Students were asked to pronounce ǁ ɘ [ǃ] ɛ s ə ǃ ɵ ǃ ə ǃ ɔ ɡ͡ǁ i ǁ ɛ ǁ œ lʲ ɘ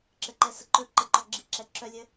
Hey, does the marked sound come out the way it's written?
yes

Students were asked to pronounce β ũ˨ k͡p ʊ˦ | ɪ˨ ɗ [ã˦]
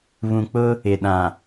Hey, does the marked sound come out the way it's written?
no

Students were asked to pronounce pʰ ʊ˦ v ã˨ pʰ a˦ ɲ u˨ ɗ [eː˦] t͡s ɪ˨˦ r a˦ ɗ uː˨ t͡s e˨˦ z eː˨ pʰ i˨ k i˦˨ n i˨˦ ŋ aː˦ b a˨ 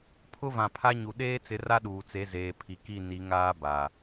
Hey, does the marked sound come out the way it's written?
yes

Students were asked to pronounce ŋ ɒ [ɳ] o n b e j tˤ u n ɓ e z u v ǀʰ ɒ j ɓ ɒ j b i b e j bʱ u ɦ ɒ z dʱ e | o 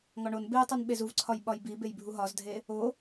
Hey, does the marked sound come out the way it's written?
yes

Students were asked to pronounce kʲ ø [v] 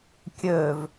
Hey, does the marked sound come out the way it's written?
yes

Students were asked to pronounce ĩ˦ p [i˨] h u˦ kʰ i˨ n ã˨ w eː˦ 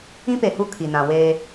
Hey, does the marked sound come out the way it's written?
no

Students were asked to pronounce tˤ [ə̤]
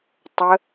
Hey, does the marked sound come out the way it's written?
no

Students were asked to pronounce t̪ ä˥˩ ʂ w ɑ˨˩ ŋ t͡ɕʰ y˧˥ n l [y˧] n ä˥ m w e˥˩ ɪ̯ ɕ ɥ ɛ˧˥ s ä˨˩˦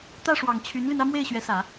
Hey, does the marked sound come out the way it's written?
yes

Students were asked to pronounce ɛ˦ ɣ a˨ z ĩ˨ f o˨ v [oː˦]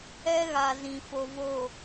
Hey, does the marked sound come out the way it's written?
no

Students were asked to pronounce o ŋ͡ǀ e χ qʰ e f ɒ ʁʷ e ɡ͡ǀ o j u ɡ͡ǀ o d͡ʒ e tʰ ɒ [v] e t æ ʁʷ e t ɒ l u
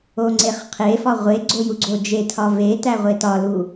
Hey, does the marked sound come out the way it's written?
yes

